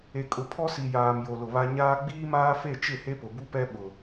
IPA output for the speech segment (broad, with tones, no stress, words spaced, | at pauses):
e˨kʼʊ˨pʰɔ˦ si˨ jaː˨mjo˨ lʊ˨βa˦ ɲaː˦ ɡ͡biː˦maː˦fe˦˨t͡ʃɪ˦˨ he˦pʊ˨bu˦pɛ˦ ɓʊ˨